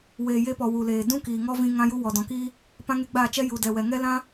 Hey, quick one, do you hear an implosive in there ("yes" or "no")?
no